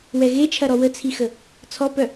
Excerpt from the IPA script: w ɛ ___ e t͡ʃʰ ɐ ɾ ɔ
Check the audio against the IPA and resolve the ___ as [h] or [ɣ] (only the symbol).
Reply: ɣ